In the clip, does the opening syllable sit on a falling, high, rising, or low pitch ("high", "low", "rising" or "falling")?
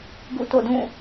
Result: falling